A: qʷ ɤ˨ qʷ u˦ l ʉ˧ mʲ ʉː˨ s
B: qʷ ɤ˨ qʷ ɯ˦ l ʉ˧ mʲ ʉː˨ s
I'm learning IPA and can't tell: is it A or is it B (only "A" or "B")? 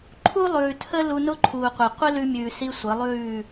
B